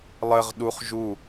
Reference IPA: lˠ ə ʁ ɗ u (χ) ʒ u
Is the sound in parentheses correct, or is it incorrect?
correct